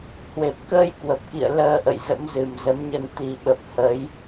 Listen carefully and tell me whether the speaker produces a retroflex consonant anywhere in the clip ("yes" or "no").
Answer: no